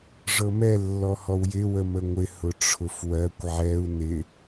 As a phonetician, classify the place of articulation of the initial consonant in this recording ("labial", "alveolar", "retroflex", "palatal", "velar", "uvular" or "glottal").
retroflex